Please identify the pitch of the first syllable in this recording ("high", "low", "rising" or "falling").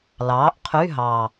rising